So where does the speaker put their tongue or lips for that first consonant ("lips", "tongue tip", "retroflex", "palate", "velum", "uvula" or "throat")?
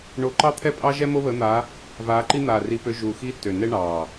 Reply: retroflex